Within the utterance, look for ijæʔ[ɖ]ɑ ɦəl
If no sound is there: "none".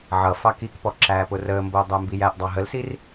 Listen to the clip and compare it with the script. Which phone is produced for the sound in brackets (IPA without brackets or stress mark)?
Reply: dˤ